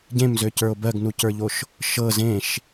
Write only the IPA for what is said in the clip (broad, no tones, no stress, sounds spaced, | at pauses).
ɟ ẽ m z ø c ə˞ o̯ b ɜ ɡ n u c ə˞ ʎ o ʃ | ʃ ɤ z ẽ ʃ